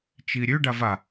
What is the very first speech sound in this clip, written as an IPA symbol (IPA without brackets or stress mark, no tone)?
t͡ʃ